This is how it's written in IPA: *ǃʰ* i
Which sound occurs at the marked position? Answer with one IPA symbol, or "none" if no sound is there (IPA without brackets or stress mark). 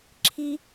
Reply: ǁʰ